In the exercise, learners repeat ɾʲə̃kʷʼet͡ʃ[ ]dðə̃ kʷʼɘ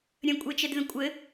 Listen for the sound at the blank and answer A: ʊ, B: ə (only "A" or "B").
B